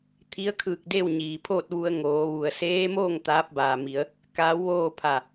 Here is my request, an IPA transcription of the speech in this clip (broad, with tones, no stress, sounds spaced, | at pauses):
t̪ʰ i˧˥ ə̯ kʰ ɯː˧˩ k̚ d e˥˨ w ɲ iː˩ pʰ oː˥˨ t̚ ʋ u˧ ə̯ ŋ oː˩˧ ʋ u˩ ə̯ s eː˧˥ m oː˥˨ ŋ t̪ aː˧˥ p̚ b aː˩ m i˩˧ ə̯ | k aː˧˥ w ʋ oː˥˨ pʰ a˧˩